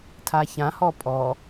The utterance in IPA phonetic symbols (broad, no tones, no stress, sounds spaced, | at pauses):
tʰ a ç ã h ɔ pʼ ɔ